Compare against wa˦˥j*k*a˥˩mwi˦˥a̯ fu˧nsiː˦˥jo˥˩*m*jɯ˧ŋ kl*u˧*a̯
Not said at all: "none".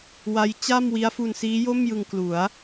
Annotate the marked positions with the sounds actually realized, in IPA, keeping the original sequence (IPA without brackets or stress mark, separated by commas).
t͡ɕ, m, u˩˦